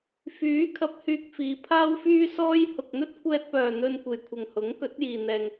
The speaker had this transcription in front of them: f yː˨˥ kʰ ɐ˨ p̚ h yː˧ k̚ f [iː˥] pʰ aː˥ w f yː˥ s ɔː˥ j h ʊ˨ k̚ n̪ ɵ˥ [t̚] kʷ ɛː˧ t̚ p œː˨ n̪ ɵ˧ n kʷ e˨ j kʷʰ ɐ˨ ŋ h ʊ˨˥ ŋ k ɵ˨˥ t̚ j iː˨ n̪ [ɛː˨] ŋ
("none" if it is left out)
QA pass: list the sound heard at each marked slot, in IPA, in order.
iː˨˧, t̚, ɛː˨

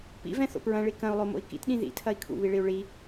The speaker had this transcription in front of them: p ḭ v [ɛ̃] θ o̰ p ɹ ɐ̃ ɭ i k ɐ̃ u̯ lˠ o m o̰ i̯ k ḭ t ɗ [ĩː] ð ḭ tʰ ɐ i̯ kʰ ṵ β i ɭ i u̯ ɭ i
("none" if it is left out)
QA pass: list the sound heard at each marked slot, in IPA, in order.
ɛ̃, ĩ

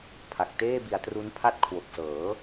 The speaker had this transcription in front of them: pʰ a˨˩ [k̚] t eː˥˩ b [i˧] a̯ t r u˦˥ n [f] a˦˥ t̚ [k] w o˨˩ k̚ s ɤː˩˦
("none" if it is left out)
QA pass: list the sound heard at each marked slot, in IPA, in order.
k̚, i˧, pʰ, kʰ

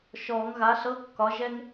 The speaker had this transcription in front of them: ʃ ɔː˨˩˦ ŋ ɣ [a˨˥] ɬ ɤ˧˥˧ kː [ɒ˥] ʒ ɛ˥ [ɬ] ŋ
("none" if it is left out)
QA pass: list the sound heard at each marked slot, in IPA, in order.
a˨˥, ɒ˨˥, none

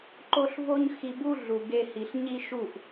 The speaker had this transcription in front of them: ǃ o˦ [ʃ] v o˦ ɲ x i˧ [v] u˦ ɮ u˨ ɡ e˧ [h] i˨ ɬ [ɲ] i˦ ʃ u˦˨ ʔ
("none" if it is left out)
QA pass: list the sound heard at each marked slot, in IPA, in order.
ɬ, b, h, ɲ

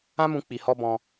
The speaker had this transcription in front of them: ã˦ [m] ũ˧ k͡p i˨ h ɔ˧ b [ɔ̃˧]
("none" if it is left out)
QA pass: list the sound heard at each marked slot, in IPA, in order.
m, ɔ̃˧

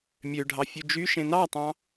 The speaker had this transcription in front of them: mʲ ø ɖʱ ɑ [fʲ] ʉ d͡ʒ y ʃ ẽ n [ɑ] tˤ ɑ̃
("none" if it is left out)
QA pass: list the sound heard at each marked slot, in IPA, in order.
fʲ, ɑ

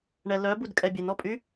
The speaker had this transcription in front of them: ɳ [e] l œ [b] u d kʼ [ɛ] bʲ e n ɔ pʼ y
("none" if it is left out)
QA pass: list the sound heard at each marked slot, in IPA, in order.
ɛ, b, ɛ

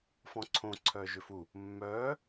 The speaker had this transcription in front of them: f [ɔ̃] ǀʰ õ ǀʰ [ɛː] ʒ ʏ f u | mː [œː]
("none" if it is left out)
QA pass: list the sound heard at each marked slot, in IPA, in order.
ɔ̃, œː, œː

